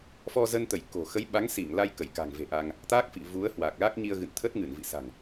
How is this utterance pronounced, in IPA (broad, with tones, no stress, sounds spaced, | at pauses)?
f ɔ˧ z ə˧ n t̪ ə˧˩ j k o̤˨˩ x ə˨˦ j ɓ a˨˦ ŋ s i˧˩ ŋ l a˧ j k ə˧˩ j k a̤˨˩ ŋ v e̤˨˩ ʔ a˧ ŋ | t̪ a˦˥ k̚ f ḭ˧˨ v u˨˦ ə̯ h w a˨˩ k̚ l a˦˥ k̚ ɲ i˧ ə̯ ɣ ɨ̰˧˨ n t̪ʰ ə˦˥ t̚ ŋ ɨ˧˩ n v ḭ˧˨ s a̤˨˩ ŋ